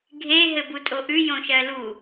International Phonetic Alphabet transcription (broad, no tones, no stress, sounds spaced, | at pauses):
ɡʱ e ɦ ɘ b u tʼ o ʔ ʉ j õ ʃ ɜ l u